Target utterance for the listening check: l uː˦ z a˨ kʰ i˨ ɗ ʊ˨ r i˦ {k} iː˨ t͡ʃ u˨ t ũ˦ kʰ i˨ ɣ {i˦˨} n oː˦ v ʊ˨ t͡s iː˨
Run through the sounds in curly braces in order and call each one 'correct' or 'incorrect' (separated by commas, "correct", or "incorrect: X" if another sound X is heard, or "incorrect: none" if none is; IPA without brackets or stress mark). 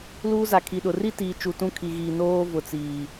incorrect: t, incorrect: i˨